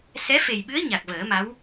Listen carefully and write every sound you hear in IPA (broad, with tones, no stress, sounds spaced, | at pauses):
s ɛ˧˥ f e˨˩ j ɓ ɨ˧˥ ə̯ ɲ a˨˩ k̚ v əː˨˩˦ m a˧˥ w